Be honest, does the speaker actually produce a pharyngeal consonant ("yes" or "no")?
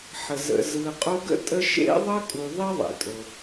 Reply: yes